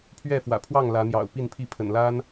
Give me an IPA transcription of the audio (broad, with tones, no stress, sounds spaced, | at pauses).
pʰ ɥ ɛ˥˨ f w ä̰˨˩ pʰ w ɑ˥˨ ŋ l ä˨˦ n̪ j ɑ̰˨˩ ʊ̯ p i˥˨ n pʰ i˥˨ pʰ ə̰˨˩ n l a˦ n